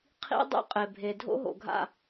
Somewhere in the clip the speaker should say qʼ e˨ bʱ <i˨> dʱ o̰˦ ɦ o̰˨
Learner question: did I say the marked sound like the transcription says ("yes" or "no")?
no